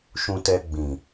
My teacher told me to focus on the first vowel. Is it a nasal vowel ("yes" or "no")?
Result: yes